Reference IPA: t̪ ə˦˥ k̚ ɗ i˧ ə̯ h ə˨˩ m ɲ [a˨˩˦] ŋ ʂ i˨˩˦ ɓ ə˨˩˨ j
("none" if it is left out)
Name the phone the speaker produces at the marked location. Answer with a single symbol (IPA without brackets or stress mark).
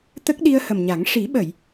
a˨˩˦